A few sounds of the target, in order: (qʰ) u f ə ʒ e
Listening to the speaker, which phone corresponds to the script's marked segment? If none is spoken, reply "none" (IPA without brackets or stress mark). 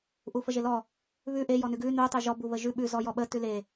ʔ